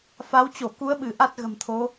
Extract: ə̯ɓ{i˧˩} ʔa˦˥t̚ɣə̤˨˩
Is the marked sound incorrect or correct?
incorrect